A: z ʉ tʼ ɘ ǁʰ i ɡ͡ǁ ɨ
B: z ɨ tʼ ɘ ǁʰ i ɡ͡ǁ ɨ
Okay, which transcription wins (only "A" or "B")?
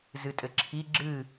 B